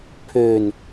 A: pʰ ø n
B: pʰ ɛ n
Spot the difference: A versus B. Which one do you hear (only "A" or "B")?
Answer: A